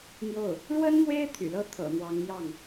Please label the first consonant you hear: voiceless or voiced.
voiced